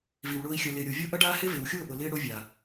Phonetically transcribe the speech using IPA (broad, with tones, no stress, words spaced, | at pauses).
vi˨wɭʊː˧i̯ xʲɐ˨lɪː˨ ɾʲo˨vʲo˦ʔɐ˦ɖaː˦ hɪ˦ vɪː˨wxʲʊː˦˨ʔʊ˨ lɪː˦ ɽo˦vʲa˨